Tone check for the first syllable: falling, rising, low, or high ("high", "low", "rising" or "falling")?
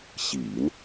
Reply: low